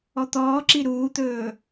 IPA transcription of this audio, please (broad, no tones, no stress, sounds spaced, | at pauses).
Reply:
ɔ t̪ ɔː ǁ i ɾ uː t̪ ɵː